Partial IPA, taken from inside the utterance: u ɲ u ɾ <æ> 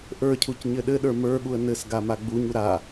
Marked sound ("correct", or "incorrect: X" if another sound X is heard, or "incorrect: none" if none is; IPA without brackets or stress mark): incorrect: a